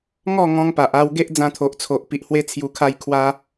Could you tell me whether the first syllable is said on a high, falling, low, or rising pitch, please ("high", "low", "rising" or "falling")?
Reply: falling